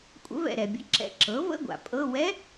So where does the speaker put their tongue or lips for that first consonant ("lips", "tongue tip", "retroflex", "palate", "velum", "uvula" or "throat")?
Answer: velum